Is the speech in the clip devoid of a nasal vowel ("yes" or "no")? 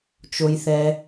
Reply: yes